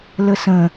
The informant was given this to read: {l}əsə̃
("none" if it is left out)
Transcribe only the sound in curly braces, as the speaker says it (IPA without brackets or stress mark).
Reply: l